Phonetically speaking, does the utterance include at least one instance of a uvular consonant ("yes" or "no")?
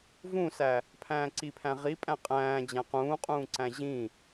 yes